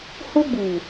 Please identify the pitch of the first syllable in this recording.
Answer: high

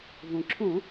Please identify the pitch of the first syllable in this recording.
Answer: low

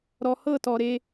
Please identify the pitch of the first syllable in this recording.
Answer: low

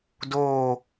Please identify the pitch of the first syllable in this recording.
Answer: falling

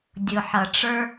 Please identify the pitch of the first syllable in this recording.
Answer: low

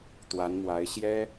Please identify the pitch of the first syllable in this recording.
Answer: rising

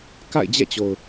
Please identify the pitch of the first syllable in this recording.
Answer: falling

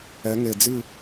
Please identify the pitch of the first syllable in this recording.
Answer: rising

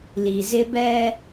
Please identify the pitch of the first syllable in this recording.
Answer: low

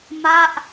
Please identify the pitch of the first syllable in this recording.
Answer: falling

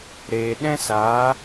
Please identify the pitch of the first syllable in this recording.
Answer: low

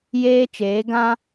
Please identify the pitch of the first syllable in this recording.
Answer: high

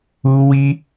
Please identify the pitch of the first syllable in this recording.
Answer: high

